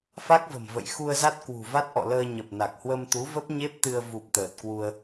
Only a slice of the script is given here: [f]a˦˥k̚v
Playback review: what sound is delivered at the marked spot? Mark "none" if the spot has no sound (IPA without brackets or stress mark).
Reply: f